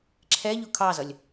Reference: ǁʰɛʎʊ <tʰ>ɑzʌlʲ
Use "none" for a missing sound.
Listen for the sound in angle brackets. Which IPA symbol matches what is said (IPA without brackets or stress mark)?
kʰ